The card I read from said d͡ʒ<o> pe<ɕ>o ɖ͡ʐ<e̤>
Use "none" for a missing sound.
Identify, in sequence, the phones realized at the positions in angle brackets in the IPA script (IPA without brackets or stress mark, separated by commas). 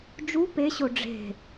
u, ɕ, e̤